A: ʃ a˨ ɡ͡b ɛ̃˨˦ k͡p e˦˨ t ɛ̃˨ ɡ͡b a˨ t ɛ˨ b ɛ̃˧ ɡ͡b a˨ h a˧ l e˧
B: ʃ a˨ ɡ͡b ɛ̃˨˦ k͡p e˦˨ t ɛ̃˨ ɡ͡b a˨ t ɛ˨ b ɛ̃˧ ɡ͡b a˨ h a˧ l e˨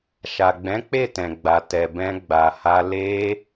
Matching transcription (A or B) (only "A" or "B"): A